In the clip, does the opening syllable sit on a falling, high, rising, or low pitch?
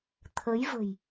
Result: rising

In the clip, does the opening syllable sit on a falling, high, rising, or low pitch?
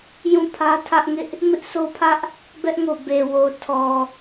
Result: falling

